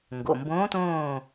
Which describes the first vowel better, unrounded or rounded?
rounded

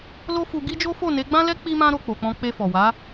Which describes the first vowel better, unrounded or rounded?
rounded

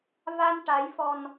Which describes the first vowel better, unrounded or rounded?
unrounded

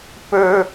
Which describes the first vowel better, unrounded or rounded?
rounded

